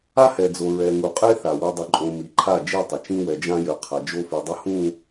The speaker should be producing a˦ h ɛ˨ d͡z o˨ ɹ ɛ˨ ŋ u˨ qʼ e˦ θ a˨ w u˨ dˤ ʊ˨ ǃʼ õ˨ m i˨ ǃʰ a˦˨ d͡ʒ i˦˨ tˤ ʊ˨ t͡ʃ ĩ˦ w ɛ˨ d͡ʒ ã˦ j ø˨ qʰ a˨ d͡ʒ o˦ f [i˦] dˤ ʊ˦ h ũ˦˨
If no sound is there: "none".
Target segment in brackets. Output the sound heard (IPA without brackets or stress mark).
i˨